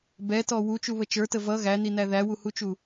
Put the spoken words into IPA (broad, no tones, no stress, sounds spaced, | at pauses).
b ɛ t ɔ w u t͡ʃ u β ə t͡ʃ ə˞ t ə v ʌ ɣ æ n i n æ ð æ w u h u t͡ʃ u